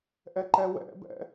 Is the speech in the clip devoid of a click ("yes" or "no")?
no